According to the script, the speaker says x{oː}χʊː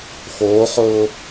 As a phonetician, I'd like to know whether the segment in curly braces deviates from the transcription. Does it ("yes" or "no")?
no